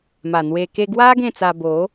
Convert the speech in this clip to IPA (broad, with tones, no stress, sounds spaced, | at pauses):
m a˨˩ n̪ w e˧ k e˧ ɡ w a˦ ɡ ẽ˥˧ t͡s a˧ b o˨˦